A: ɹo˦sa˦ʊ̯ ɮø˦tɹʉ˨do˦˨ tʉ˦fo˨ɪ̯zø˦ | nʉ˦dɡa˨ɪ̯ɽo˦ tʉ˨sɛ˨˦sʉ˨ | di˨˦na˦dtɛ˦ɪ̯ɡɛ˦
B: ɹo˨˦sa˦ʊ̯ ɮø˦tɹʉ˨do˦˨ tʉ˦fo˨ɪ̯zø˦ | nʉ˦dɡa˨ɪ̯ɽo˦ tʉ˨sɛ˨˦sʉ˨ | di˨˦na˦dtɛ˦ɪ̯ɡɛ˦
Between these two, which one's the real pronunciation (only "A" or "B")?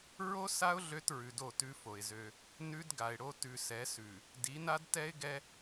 A